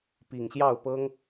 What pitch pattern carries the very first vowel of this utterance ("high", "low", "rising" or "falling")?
low